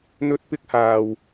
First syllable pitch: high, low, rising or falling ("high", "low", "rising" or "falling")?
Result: high